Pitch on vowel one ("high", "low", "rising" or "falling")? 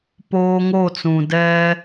high